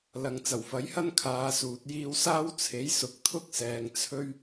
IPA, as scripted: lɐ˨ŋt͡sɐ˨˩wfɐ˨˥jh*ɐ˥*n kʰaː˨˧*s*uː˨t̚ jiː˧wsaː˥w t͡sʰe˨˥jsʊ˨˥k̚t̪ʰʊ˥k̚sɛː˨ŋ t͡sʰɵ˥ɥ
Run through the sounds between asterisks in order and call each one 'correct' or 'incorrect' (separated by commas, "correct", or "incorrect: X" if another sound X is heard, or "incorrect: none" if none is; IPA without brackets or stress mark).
correct, correct